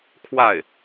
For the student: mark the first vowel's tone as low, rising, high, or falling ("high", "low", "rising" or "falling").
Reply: falling